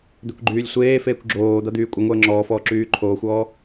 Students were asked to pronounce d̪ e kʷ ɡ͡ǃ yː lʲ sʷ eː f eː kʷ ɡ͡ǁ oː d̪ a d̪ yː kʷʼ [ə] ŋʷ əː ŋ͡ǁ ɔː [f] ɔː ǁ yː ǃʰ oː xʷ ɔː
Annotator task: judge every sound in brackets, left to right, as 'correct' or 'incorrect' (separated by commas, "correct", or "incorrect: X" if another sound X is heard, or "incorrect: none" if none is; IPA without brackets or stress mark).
correct, correct